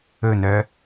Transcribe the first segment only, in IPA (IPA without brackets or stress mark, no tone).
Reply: ɵ